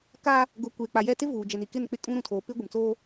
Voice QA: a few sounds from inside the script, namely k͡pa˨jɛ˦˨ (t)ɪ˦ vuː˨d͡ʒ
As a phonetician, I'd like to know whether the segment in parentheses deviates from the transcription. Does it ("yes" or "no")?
no